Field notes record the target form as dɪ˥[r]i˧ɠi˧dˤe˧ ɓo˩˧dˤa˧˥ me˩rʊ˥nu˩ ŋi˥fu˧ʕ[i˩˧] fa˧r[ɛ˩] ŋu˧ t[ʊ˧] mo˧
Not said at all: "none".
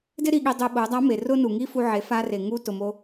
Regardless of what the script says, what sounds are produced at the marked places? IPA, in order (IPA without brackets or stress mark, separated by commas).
ɾ, e˩˧, e˩, ʊ˩